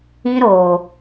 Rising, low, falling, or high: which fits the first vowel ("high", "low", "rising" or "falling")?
high